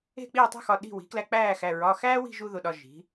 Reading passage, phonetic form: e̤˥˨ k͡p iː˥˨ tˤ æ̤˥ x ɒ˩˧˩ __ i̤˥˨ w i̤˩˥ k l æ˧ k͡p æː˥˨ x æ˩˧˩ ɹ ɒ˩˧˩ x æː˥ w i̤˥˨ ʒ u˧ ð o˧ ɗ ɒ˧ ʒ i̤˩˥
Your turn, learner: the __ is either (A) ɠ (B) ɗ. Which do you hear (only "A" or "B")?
B